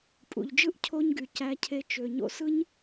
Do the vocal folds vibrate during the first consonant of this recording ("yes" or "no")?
no